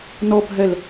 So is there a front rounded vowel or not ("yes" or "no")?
no